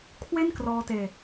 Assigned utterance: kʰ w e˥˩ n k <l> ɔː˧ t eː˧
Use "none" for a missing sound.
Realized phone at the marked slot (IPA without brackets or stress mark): r